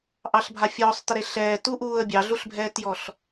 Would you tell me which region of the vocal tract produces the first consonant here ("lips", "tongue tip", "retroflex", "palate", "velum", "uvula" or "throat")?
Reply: throat